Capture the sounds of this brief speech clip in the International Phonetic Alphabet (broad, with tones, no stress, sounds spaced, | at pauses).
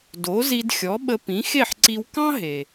d o˩˥ z i˧ d xʲ ɔ˩˥ ɓ ə˧ p ĩ˩˥ x e˥˩ ħ ǀ i˧ w k ɑ̃˥ ɦ e˩